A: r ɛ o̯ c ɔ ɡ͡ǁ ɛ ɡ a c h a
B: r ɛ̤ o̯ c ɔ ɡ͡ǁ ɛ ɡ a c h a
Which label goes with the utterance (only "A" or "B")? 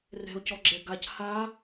B